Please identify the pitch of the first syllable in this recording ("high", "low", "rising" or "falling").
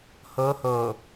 rising